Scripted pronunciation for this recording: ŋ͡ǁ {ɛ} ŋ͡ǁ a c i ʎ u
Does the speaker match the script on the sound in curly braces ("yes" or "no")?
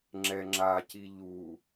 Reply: yes